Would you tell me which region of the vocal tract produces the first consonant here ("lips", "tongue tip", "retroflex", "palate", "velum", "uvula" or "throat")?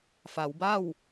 lips